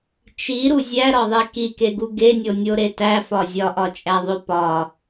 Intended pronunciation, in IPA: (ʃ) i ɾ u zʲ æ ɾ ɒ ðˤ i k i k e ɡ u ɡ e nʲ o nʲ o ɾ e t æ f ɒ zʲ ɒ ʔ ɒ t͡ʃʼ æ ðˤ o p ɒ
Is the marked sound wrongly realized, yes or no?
yes